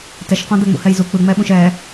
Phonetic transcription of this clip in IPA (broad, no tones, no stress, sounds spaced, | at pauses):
t ɛ ʃ q ɔ̃ d̪ ɛ ŋ͡m ṵ h ɛ j z u k͡p ɯ ŋ͡m ɛ ɓ ũ ʃ ɛ